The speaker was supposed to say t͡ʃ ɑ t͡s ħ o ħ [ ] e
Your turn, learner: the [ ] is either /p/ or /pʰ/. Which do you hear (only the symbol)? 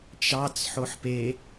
p